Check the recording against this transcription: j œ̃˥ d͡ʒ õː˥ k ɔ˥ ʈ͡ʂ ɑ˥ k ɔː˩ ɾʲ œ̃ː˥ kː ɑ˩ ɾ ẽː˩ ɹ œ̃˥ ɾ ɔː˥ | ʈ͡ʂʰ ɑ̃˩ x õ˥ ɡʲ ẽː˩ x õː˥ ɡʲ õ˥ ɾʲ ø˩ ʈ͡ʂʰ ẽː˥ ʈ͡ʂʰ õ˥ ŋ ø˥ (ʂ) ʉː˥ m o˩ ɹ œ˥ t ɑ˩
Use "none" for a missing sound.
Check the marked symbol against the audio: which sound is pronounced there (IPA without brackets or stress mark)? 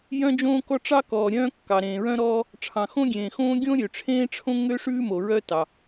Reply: ʂ